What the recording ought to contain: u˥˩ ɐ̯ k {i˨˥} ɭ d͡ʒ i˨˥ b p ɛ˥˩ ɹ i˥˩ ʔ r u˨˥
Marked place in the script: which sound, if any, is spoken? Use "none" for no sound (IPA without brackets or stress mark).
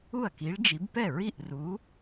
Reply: i˨˥